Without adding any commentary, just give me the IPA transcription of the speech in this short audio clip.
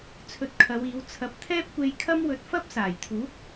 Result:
t͡sʰ ɵ˧ t̚ kʰ ɐ˨˧ w iː˨˧ w t͡sʰ ɐ˨˥ p̚ t̪ʰ ɛː˥ p̚ kʷ e˧ j kʰ ɐ˥ m w ɵ˧ t̚ f ɐ˥ p̚ s aː˨˩ j t̪ʰ uː˨˥ k̚

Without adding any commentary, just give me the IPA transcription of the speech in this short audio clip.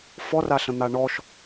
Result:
f ɔ r a ɬ ə̃ n̪ a ɳ ɔ ʃ

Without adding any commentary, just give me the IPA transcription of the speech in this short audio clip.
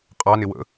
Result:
qʼ ɑ n ɪ w ə̰

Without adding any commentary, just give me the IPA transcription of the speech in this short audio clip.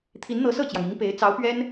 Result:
t̪ʰ i˧˥ n n̪ ɤ˧˥ s ɤ˥˩ t͡ɕ j ɑ˩ ŋ i˧˥ ŋ p e˧˥ ɪ̯ t͡s ɑ˧˥ ʊ̯ p ɥ ɛ˥ n

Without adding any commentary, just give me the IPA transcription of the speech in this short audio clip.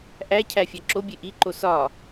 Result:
ʔ æ cʰ æ fʲ æ ǁ o bʲ e ʔ i ǃ o s ɒ

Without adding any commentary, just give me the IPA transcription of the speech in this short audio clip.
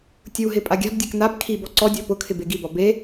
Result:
tʲ u ɦ ɪ pʼ a ɡʲ a̤ b dʲ ɛ k n a b kʰ i b ɔ ǀ ɔ dʲ ɔ p ʊ kʰ ɪ b e ɡ i b ɔ b e

